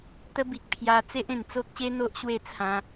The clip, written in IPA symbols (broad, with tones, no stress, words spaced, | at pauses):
t̪ə˦bi˨k̚ pʰja˧ t͡se˦ʔẽ˨˩nt͡so˦k̚ɕe˦ n̪o˦ʔɕwe˥˧t͡sʰã˧